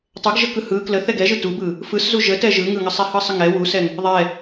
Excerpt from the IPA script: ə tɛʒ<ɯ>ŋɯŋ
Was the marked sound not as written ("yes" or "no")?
no